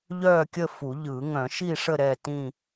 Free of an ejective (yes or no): yes